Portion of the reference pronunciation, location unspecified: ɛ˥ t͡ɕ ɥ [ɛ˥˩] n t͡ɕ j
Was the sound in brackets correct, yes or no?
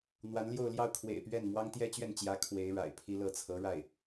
yes